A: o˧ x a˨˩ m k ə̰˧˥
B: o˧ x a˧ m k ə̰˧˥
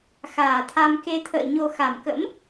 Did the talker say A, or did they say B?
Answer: A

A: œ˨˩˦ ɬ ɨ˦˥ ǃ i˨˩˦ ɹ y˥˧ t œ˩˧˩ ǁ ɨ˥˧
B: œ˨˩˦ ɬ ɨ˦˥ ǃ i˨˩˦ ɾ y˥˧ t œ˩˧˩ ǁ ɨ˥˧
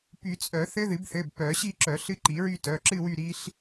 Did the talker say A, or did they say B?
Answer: A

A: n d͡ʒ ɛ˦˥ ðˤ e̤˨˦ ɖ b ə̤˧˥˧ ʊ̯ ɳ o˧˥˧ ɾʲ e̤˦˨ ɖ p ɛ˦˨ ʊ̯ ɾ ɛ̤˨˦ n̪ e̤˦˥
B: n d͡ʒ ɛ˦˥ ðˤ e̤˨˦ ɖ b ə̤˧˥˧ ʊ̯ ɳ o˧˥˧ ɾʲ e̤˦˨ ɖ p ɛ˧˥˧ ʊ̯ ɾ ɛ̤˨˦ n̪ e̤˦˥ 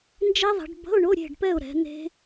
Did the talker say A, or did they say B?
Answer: A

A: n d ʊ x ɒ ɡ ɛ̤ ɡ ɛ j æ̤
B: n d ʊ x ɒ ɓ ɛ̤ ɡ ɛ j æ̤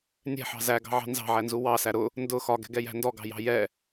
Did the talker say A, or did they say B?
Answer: A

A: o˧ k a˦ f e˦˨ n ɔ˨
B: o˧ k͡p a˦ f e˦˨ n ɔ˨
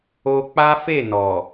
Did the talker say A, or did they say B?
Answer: B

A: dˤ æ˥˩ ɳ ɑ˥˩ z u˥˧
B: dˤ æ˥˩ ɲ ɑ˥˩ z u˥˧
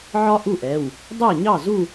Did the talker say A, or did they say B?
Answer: B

